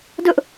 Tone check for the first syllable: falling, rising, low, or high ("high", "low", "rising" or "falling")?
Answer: high